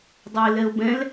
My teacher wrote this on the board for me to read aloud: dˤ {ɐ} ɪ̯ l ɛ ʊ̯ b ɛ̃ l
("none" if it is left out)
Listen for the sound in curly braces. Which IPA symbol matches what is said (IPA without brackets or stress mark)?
ɐ